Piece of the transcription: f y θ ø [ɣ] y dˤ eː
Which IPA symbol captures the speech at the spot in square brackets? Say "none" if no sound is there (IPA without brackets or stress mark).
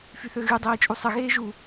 ɣ